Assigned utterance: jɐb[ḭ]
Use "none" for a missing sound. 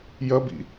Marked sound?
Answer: ḭ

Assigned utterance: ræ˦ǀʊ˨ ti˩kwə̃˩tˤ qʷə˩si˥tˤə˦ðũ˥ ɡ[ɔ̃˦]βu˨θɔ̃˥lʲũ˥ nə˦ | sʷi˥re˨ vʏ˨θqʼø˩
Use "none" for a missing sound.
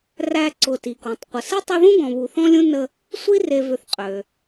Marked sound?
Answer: ɔ̃˨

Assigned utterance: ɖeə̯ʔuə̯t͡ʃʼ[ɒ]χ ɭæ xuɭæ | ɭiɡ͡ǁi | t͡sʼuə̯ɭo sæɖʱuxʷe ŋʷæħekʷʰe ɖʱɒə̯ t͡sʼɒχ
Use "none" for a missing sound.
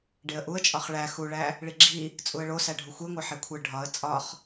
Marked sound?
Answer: ɒ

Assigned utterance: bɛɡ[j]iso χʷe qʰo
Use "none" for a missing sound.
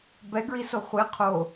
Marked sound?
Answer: ɹ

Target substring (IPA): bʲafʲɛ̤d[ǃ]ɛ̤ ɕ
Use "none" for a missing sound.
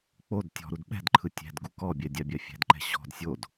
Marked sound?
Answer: ǃ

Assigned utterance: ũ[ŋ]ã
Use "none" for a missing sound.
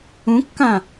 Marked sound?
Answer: kː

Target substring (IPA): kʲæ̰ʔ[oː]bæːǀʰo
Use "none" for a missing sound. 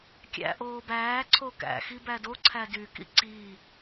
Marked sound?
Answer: oː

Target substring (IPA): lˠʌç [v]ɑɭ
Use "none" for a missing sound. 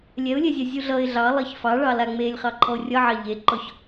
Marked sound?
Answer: f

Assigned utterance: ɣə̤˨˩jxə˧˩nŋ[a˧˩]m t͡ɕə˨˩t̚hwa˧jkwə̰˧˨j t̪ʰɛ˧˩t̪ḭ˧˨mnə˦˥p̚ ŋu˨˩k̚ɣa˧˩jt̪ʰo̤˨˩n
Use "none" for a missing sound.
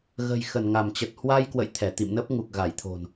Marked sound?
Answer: a˧˩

